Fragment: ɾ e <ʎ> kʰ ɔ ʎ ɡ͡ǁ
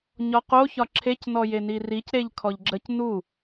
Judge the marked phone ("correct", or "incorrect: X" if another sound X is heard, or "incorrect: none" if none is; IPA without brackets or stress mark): correct